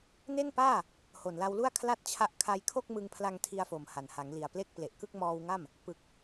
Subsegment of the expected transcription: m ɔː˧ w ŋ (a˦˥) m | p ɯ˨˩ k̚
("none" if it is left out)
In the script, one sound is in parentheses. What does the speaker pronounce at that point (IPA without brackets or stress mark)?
a˥˩